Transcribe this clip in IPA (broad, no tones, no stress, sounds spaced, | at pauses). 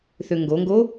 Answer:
θ ø ŋ ɡ o ŋ ɡ o